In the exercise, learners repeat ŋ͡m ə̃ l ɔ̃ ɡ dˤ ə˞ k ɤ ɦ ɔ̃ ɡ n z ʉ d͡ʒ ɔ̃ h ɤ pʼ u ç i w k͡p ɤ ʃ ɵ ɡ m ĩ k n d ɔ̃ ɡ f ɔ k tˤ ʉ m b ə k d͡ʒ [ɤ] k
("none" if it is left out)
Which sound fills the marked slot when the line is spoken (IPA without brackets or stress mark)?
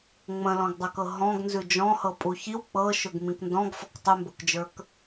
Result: ə˞